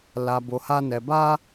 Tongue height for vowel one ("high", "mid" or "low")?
low